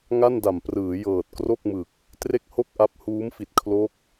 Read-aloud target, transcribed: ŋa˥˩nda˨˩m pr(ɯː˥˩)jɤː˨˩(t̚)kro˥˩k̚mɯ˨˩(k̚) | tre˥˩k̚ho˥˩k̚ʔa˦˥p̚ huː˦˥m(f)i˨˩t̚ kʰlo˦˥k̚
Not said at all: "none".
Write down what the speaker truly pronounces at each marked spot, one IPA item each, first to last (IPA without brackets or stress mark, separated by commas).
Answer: ɯː˩˦, t̚, k̚, f